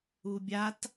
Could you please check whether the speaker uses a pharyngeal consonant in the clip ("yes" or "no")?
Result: no